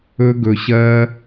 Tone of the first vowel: high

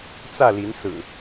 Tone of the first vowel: falling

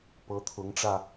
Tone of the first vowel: rising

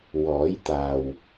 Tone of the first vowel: rising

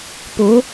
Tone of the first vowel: rising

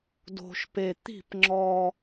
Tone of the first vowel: low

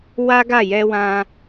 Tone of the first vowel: high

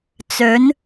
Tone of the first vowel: rising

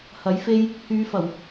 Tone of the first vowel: rising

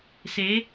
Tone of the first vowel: rising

